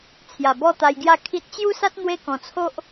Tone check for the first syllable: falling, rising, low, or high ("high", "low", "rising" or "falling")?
low